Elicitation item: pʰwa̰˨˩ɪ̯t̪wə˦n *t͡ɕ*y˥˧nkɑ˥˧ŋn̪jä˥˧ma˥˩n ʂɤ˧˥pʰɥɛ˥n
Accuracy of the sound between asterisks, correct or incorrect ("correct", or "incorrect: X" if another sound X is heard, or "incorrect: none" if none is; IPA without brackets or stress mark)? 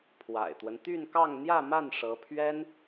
incorrect: t̪